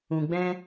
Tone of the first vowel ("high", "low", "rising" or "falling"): low